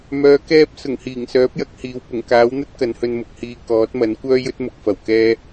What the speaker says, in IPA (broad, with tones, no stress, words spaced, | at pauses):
mœː˨˧kɛː˧p̚ sʊ˨˩ŋhiː˨˩ŋsœː˨˥p̚jɐ˨˥k̚ hiː˨w pʊ˨˩ŋ kaː˨˥wn̪ɐ˥t̚ kɐ˨˧nhɵ˧nmʊ˨˥k̚hiː˧ kɔː˨˥t̚mɐ˨˥n kʷœː˥jɵ˥t̚mʊ˨k̚fɐ˨˩w kɛː˥